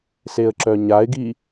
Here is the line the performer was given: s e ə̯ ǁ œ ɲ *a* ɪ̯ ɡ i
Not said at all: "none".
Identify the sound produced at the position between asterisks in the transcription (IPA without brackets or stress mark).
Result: a